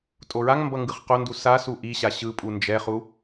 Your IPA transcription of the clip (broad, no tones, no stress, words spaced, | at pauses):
tʼoɹaŋmbʌ ŋɡɯχqondu sa suʔiɕa ɕɯpʼu nd͡ʒɛχu